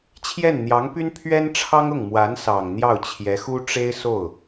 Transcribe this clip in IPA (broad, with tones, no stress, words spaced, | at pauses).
t͡ɕʰjɛ˥˩nn̪jɑ˧˥ŋpy˥npʰɥɛ˥n ʈ͡ʂʰɑ˥ŋʊ˥˩ŋmwa˧˥n sɑ˨˩ŋn̪jɑ˥˩ʊ̯ t͡ɕʰjɛ˧˥xu˥ ʈ͡ʂe˥ɪ̯so˥˩ʊ̯